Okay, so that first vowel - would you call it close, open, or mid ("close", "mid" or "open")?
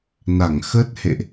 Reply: open